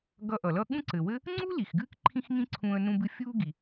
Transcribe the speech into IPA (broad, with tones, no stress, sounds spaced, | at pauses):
ɡ ʌ˧ ʔ ʌ˩ l ʌ˥ ɠ ũ˥ ǀ ɘ˩ w ɘ˥ | ŋ͡ǀ u˥ l i˩ x ɡ ɨː˥ k ǃʰ ĩ˥ x ŋ ĩ˥ ǀʰ ũː˧ ə̯ n ũ˧ b ɨ˧ fʲ uː˥ ɡ i˩